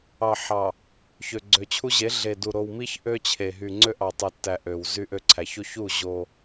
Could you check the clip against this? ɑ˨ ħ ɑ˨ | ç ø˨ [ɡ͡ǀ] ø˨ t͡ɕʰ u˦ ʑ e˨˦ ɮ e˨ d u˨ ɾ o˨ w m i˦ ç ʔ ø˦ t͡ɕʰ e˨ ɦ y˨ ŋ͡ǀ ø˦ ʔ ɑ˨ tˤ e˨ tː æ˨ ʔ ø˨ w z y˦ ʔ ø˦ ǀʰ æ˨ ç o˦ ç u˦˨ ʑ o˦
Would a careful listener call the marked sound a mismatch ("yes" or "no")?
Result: no